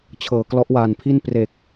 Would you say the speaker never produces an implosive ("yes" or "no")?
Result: yes